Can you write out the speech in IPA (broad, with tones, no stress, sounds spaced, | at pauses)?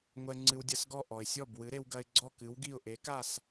ŋʷ ɛ˧ ŋ͡ǀ ɨ˧ w dʲ ɐ˧ s ɡ ɔ˥˩ ʔ ɔ˩ ɪ̯ sʲ ɔ˥˩ b w ɨ˩˥ ɾ e˧ w ɡ ɐ˧ ɪ̯ ɡ͡ǀ ɔ˥˩ k ɨ˩˥ w ɡ i˥˩ ʊ̯ ʔ e˩˥ k a˥˩ s